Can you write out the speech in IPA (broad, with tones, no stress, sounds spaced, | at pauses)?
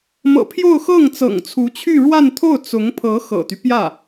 m ɤ̰˨˩ pʰ j o˥˧ ʊ̯ x ɤ˥˩ ŋ t͡s ɤ̰˨˩ ŋ t͡sʰ u˧˥ t͡ɕʰ y˥˧ ɻ w a˥˧ n t̪ʰ o˥˩ ʊ̯ t͡s ʊ˧˥ ŋ pʰ ɤ˧˥ x ɤ̰˨˩ t̪ y˦ p j ä˥˩